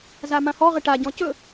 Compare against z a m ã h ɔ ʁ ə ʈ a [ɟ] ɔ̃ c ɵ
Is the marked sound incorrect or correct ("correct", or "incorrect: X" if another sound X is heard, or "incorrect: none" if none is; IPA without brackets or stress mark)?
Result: correct